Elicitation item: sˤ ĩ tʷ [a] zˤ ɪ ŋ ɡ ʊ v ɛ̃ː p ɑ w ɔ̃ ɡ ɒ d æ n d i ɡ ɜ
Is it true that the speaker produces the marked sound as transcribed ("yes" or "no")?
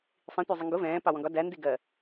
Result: no